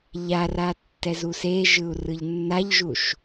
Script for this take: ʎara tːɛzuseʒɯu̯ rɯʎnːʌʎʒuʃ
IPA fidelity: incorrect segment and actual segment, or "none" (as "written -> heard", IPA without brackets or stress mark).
ʌ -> a